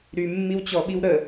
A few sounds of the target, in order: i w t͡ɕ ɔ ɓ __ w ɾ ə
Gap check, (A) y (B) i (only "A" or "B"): B